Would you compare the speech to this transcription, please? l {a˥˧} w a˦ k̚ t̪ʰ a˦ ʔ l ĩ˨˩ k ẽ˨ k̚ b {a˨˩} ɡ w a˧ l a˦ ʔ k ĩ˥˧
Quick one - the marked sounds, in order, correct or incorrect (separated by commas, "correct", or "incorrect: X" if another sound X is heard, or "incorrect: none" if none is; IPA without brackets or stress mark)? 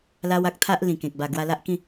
incorrect: a˦, correct